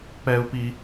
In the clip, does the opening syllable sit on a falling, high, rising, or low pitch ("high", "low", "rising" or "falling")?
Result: high